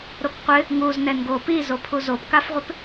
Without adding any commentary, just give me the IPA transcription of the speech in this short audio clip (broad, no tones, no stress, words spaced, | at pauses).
ɾokqʷɪ | ŋuz nɛnɡo pizo pʰuzopkafʁʷɪp